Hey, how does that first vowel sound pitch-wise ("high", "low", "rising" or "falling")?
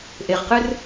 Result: low